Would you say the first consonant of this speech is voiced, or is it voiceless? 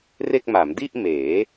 voiced